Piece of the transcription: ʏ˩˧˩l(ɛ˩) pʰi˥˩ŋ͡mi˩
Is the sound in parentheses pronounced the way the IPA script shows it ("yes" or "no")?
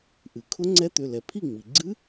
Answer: yes